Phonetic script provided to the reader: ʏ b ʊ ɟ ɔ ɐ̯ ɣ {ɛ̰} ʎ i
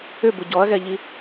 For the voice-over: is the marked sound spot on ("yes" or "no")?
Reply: no